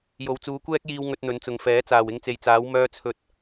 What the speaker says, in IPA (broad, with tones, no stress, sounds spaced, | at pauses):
j o˨ w t͡s uː˨˧ kʷ ɛː˥ k̚ j iː˧ w ŋ ɵ˧ t̚ n̪ ɵ˨˧ n t͡s ʊ˨ ŋ f ɛː˨˥ t͡s aː˨˩ w ɪ˧ ŋ t͡s e˨ j t͡s aː˨˥ w m œː˧ t͡sʰ ɵ˨ t̚